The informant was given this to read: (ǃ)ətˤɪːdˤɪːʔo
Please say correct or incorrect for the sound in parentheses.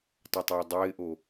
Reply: incorrect: tˤ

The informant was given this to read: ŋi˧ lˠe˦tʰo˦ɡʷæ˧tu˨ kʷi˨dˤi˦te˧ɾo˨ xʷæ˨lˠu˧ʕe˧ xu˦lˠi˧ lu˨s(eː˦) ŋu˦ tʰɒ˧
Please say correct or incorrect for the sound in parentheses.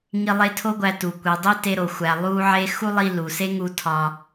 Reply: incorrect: e˦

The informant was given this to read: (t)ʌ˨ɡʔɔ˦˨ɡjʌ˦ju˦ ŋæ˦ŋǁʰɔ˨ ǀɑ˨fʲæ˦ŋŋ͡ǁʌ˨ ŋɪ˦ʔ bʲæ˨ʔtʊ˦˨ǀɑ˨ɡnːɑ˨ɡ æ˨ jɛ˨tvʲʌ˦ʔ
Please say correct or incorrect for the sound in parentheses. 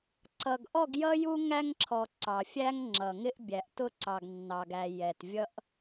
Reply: incorrect: ǀ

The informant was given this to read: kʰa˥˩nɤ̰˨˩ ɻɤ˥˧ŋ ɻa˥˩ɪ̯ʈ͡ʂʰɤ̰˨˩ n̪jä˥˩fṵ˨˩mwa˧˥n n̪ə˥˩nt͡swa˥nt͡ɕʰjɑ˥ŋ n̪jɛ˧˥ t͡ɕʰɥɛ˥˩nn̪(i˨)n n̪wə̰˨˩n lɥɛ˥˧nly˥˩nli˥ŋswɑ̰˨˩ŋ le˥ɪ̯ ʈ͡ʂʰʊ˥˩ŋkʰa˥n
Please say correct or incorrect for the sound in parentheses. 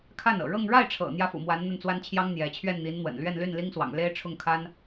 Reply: incorrect: i˧˥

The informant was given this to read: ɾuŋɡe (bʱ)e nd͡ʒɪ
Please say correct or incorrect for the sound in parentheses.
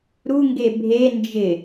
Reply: correct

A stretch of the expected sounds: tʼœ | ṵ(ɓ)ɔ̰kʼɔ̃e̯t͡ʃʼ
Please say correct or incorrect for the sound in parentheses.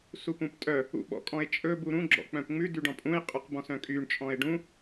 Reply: correct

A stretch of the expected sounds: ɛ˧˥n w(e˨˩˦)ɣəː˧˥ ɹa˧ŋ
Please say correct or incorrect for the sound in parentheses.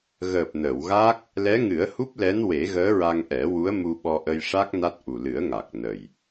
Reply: correct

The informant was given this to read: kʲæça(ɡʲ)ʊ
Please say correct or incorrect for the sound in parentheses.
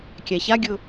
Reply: correct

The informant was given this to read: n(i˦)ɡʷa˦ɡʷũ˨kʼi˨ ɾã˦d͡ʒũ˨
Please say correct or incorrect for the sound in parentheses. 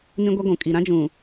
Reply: incorrect: ĩ˦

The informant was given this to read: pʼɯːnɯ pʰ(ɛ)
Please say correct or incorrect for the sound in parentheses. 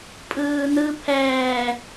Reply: incorrect: ɛː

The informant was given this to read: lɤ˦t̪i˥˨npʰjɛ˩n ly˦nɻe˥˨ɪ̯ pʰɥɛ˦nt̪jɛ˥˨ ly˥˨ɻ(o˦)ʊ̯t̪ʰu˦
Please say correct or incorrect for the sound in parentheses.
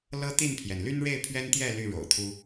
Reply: incorrect: o̰˨˩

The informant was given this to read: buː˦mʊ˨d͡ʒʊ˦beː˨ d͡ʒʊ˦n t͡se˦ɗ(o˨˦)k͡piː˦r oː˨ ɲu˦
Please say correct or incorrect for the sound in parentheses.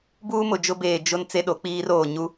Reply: correct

